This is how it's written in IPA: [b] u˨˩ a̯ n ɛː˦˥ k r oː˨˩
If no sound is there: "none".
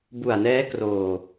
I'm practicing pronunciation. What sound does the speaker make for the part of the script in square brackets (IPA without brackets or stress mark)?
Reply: b